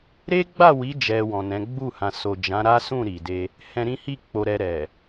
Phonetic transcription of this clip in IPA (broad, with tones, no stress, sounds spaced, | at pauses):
ɾ e˦ ɡ͡b a˦˨ w i˨˦ d͡ʒ ɛ˧ w ɔ̃˨ n ɛ̃˨˦ ɡ͡b u˦˨ h ã˨ s o˨ d͡ʒ ã˨˦ ɾ a˦ s ũ˦˨ ɾ i˨ d e˧ | h ɛ̃˧ ɾ ĩ˦ h i˦˨ k͡p o˧ ɾ ɛ˧ ɾ ɛ˨